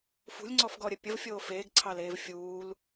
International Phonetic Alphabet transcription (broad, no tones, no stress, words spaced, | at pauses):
fṳlʲŋ͡ǀɔfɡɔɾʲə pʲəvfʲoː feːɡǀʰɑleːv fʲuːl